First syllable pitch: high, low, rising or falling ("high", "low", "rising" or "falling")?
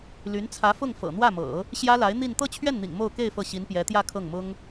rising